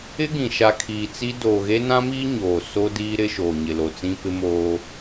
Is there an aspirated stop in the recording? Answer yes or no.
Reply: yes